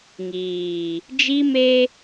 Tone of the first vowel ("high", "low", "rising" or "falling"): low